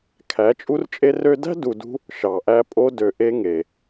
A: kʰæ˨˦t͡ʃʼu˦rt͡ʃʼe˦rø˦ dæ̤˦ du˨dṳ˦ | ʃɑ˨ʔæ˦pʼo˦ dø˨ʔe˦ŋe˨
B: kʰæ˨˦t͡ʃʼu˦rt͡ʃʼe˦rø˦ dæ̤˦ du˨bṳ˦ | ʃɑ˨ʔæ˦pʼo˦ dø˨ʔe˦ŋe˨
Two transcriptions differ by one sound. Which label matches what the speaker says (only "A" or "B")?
A